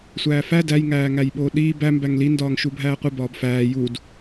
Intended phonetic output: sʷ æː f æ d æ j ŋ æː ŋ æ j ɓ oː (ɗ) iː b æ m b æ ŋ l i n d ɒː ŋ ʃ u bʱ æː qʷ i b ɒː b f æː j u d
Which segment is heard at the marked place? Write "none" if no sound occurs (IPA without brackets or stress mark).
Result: ɗ